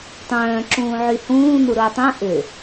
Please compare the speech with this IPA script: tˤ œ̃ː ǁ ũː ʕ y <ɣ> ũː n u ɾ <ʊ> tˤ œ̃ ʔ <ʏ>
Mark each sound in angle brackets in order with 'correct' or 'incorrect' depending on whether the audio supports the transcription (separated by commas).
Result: incorrect, correct, correct